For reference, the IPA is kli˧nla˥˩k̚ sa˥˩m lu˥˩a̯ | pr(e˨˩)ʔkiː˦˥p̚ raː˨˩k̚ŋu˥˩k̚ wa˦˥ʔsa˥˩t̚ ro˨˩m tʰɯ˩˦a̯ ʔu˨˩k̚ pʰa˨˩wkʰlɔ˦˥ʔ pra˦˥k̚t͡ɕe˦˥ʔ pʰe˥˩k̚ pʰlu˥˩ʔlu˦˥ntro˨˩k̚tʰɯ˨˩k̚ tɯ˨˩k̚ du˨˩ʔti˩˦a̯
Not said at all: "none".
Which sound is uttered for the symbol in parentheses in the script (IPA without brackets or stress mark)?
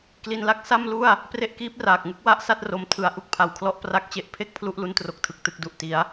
e˦˥